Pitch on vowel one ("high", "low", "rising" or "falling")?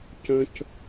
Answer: high